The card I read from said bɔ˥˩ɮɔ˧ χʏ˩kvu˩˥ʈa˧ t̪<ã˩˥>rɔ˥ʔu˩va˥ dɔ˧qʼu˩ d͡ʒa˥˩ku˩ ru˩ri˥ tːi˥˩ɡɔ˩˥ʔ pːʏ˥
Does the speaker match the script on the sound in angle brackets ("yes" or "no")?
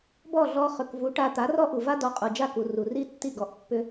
no